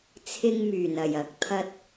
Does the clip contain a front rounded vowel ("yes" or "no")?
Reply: yes